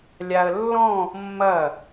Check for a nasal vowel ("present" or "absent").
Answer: present